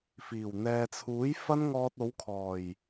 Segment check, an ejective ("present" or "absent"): absent